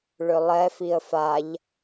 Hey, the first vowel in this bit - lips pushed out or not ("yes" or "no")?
yes